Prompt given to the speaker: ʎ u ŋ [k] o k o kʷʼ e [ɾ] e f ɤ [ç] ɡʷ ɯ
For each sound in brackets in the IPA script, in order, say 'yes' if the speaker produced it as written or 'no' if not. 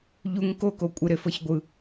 yes, yes, yes

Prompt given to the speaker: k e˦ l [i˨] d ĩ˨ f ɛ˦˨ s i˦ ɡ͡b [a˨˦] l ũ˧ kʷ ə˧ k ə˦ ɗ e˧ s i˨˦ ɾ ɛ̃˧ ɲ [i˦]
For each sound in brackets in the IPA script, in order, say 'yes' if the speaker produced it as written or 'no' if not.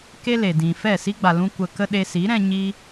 no, no, yes

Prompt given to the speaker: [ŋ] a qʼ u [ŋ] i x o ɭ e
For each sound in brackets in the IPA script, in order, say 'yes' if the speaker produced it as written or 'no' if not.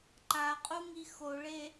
no, yes

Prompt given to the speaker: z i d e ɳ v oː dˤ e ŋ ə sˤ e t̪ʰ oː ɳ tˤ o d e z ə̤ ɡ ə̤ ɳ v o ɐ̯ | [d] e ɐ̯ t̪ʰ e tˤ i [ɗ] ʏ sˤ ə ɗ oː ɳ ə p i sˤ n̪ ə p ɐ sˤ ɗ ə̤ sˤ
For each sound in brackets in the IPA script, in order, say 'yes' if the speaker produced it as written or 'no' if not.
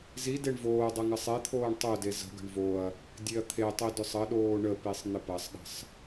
no, no

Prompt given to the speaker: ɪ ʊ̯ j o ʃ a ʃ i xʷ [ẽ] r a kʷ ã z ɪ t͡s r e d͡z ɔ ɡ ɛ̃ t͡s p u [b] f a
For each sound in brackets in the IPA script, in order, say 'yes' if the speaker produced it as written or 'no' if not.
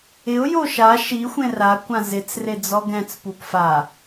yes, no

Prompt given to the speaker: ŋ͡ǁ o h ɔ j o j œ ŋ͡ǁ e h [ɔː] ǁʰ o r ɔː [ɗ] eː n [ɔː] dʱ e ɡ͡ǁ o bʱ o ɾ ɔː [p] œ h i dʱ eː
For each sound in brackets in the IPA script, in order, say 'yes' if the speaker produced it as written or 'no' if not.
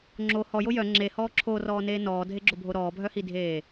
yes, no, yes, no

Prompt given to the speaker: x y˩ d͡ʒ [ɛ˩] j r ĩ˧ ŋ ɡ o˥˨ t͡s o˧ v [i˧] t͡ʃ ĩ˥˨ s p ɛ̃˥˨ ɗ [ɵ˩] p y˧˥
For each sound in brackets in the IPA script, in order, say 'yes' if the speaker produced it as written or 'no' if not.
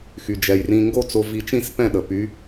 yes, yes, no

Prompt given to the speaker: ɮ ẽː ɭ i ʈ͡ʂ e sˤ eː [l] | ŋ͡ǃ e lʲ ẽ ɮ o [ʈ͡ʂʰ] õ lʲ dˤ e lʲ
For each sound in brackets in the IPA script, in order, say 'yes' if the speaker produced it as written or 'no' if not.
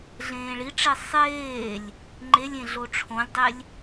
no, yes

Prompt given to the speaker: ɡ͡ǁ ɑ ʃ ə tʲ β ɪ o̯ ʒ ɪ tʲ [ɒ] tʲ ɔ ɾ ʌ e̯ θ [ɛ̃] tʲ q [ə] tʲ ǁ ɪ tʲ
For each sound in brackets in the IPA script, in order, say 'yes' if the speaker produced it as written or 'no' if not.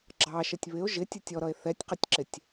no, no, no

